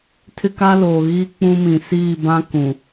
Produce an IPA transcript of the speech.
tʰ ɪ˦ k a˦ l oː˨ ɣ i˦ k͡p ũ˦ m ĩ˨ s iː˦˨ b ã˦ k ũ˨

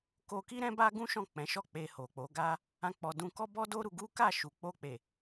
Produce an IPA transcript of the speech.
k o˧ k i˦ ɾ ɛ̃˦ b a˦ ɡ ũ˦ ʃ ɔ̃˦˨ k͡p ɛ̃˨˦ ʃ ɔ˦˨ k͡p e˧ h o˨ k͡p o˨˦ ɡ a˦ | ã˦ k͡p ɔ˧ d ũ˦ k ɔ˦ b ɔ˦ d o˦ ɾ u˧ ɡ u˦ k a˦˨ ʃ u˨ k͡p o˧ k͡p e˨

